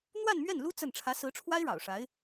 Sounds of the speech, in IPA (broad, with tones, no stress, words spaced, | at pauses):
n̪wa˥˧nmɥɛ˥˩nlu˥ t͡sə˥˩n ʈ͡ʂʰä˧˥sɹ̩˧˥ʈ͡ʂʰwa˥ɪ̯ ɻɑ̰˨˩ʊ̯ʂa˧˥ɪ̯